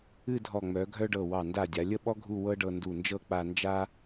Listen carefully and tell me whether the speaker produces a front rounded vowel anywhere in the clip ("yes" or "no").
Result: yes